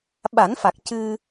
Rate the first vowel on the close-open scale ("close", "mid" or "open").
open